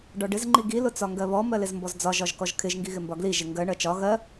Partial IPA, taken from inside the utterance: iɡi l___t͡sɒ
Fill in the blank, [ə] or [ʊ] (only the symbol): ʊ